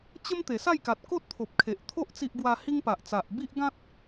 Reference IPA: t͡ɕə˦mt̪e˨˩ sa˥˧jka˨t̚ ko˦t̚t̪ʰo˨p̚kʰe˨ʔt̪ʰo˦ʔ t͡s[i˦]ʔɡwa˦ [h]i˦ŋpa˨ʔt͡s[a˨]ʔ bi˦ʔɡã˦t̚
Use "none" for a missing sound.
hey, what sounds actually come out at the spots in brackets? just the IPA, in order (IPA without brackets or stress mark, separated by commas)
i˦, h, a˨